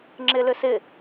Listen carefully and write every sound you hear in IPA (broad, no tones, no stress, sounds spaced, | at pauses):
ŋ͡ǁ ɪ l ʏ s ɪ